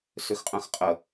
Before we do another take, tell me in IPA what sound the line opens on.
s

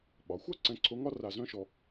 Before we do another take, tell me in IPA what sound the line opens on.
ɓ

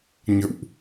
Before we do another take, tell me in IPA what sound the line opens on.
ɲ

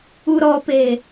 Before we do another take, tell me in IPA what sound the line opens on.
u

